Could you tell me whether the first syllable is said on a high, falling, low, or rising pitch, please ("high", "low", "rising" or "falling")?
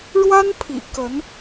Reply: high